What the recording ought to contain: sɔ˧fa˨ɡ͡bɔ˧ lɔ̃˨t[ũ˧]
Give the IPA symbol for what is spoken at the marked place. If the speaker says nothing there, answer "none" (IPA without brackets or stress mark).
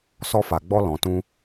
ũ˧